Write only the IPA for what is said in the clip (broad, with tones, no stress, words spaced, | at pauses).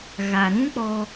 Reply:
ɣa˨ɾũ˦k͡pɔ˧